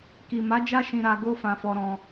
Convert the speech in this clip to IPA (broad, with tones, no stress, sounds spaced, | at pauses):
k i˨ m a˨˦ d͡ʒ a˦ ʃ ĩ˧ ɾ a˧ ɡ o˦ f ã˧ f ɔ˧ ɾ ɔ̃˧